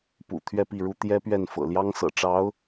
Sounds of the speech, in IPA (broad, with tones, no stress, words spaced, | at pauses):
pṵ˨˩ t̪ʰɥɛ˥˧pi˥˩ɻu˥ t̪jɛ˥pɥɛ˥˩nfɤ̰˨˩ ljɑ˥ŋsɤ̰˨˩ ʈ͡ʂɑ˧˥ʊ̯